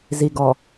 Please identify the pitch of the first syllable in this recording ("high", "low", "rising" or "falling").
low